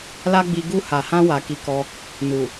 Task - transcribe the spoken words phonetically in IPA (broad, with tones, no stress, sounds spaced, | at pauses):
l a˦ ɡ͡b i˧ ɡ u˧ h a˨ h ã˧ w a˨ k i˧ k ɔ˧ | n u˨